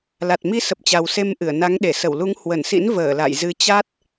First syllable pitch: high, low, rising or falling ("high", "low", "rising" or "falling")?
low